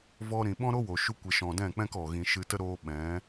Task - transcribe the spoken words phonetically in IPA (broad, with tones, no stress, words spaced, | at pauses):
vɔ˧ɾĩ˨ ɓɔ̃˦ɾo˦wo˨ ʃu˧kʷe˨ ʃɔ̃˨dɛ̃˦˨k͡pɛ̃˦k ɔ˨ ɣĩ˧ ʃɨ˧tə˦ ɾoː˧ ɓɛ̃˨˦